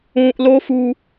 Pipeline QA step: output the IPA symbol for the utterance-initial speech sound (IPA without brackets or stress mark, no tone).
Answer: ũː